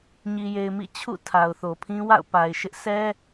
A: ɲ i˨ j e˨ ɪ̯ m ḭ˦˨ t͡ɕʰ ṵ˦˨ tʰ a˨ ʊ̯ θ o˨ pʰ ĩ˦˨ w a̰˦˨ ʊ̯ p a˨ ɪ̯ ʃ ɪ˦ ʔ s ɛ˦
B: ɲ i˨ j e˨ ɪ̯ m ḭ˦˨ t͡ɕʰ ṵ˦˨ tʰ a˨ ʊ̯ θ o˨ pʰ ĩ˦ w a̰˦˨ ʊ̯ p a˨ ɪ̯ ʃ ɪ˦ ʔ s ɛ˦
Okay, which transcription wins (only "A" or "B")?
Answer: B